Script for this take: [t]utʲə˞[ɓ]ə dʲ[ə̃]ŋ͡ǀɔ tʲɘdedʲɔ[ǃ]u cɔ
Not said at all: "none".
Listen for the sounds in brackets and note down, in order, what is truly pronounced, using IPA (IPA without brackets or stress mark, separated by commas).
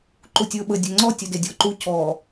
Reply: ǃ, ɓ, ə, ǃ